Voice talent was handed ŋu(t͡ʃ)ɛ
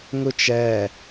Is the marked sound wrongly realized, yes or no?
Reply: no